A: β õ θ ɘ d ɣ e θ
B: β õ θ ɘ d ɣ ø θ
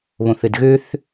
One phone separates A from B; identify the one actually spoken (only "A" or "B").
B